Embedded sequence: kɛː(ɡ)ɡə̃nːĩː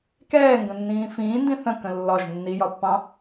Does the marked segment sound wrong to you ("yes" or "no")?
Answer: yes